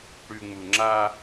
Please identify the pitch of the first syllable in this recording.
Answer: low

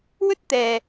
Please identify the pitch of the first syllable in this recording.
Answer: high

